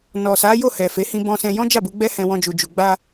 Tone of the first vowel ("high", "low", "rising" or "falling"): low